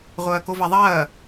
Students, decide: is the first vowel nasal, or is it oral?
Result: oral